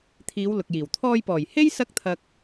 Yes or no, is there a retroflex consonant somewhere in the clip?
no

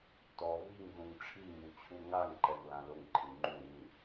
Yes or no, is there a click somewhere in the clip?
yes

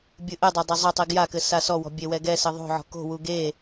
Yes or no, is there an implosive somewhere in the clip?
no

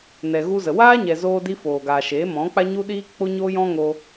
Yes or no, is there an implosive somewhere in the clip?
yes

